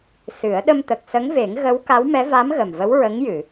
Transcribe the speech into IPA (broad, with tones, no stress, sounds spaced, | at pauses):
s ɨ˨˩˦ ə̯ ɗ ə˧ m t̪ ə˨˩ k̚ s ə˧˥ ŋ v e˨˩˦ ŋ ɣ ə˧˥ w k a˧˥ w m ɛ˧˥ v a˧˥ m ɣ ə˨˩ m v ə˧˥ w ɹ ə˧˥ ŋ j ɨ˨˩˨